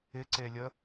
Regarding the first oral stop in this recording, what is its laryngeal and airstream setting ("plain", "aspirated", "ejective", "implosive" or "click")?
click